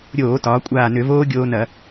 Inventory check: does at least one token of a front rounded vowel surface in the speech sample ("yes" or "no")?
yes